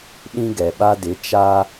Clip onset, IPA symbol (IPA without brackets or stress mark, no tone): ɗ